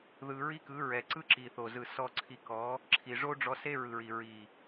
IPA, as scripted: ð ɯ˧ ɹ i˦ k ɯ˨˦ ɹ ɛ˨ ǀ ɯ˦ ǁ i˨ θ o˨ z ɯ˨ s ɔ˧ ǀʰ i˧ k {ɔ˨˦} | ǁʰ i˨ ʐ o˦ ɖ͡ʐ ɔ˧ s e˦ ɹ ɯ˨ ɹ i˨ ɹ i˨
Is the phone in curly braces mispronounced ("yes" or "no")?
no